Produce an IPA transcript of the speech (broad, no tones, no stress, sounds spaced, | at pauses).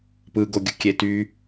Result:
p ɯ ɡ o ɡʲ ɯ kʲ e t y